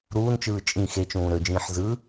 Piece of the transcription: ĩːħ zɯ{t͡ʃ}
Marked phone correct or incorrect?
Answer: incorrect